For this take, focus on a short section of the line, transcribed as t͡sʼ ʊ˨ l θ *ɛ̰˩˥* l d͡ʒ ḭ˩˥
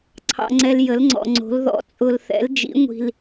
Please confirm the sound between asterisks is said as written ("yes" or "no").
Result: yes